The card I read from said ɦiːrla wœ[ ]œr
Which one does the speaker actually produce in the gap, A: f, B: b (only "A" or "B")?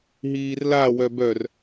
B